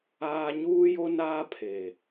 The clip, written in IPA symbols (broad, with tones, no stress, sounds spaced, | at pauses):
aː˦ ɲ uː˦ j o˦ n aː˦ pʰ e˨